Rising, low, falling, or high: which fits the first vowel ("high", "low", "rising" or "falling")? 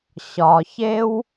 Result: low